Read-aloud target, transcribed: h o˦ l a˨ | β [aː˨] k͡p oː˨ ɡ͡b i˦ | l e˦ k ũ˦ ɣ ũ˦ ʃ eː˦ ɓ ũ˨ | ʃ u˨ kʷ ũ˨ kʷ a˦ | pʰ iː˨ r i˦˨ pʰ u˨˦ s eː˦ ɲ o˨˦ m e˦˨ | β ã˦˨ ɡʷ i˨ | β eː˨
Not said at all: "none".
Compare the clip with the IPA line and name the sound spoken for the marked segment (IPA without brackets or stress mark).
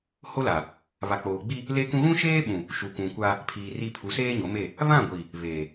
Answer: a˨